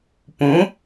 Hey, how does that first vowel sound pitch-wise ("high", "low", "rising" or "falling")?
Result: rising